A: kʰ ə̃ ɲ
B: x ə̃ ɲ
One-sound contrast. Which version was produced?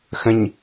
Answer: B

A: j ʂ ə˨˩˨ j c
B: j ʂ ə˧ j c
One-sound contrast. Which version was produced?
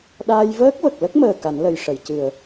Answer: A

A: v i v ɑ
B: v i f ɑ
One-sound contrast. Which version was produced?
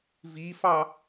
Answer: B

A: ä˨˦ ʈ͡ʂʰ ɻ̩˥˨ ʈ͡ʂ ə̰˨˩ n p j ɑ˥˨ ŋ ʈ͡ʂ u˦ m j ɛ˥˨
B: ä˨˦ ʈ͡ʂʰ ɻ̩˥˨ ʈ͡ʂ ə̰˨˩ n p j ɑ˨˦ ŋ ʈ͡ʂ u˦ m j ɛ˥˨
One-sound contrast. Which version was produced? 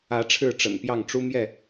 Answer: A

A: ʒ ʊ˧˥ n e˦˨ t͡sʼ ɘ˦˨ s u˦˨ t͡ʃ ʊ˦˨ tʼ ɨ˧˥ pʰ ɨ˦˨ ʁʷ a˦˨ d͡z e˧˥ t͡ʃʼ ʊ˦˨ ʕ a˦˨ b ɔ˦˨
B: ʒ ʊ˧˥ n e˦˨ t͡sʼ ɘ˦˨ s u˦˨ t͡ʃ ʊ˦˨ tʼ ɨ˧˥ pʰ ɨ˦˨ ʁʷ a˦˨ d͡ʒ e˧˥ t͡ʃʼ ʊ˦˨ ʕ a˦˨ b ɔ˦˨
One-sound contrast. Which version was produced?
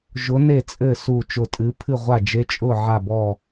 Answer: B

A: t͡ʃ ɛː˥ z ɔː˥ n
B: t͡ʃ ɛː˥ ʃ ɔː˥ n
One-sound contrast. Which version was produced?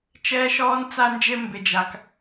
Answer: B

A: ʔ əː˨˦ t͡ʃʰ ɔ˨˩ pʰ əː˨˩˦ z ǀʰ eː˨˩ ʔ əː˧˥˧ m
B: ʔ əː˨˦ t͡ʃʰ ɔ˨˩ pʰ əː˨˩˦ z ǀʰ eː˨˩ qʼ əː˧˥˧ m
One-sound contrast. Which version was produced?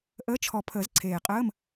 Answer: B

